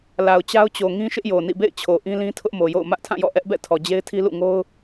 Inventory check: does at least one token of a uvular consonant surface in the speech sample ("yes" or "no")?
no